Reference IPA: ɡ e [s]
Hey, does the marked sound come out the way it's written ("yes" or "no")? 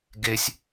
no